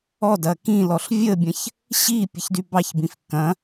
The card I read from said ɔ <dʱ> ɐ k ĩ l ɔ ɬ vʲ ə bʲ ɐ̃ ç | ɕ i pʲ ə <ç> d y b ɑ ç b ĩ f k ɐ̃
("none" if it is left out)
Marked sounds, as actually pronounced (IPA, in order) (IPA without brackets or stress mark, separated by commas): d, ç